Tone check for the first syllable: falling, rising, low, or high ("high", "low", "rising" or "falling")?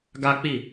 high